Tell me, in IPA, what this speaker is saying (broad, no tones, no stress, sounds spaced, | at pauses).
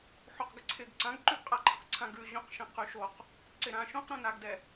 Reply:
ħ o q ɡ ɪ ǀʰ ɪ ɡ ǀ ã ɡ ǃ ʉ ɡ qʼ a ǃʰ ɪ q ǀʰ ã ɡ ʉ ʑ õ q ʃ ɛ̃ q ʉ ʃ o q | ǀ ɪ ɾ ã ʃ õ q ɾ õ n a ɡ d ɛ